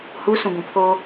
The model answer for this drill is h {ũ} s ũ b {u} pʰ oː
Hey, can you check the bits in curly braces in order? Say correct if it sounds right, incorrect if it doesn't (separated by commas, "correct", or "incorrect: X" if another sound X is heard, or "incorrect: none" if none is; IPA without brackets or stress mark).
incorrect: u, incorrect: ũ